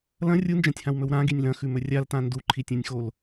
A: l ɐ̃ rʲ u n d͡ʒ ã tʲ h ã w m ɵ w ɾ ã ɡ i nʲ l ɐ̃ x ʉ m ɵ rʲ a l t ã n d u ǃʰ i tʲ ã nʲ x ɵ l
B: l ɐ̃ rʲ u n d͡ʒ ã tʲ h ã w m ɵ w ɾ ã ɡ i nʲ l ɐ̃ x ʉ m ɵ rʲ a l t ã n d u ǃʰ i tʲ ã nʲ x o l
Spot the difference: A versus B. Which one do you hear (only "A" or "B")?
B